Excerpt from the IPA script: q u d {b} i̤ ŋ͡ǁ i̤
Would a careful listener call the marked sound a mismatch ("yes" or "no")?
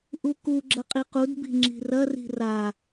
no